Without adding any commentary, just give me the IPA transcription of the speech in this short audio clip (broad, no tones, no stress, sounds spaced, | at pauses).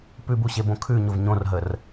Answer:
p ʉ b u ɕ e b õ kʰ ʉ ɲ ʊ v ɲ õ r ɦ ə r